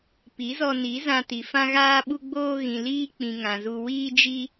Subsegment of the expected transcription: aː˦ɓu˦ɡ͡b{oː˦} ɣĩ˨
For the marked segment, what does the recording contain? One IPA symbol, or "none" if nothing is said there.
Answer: oː˦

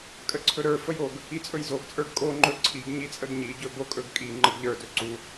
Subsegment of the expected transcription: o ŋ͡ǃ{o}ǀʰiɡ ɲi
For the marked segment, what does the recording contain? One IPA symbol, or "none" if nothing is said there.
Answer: ɵ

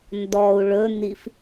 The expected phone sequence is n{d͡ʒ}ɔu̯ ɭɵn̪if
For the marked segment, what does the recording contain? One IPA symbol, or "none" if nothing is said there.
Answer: d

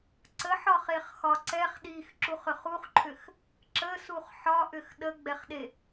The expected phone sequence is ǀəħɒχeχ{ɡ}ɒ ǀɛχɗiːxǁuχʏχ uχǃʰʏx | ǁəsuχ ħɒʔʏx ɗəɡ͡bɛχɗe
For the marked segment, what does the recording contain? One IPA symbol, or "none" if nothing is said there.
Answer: x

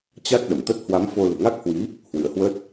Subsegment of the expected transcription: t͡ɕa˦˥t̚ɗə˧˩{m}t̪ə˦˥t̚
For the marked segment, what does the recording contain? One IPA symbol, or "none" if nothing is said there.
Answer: m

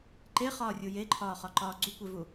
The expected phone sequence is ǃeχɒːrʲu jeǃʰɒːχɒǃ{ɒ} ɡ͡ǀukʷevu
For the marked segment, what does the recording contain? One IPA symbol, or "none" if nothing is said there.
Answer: ɒː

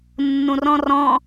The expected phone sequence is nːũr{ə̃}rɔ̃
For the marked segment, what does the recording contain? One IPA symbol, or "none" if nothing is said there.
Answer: ɔ̃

